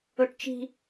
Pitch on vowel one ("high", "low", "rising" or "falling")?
high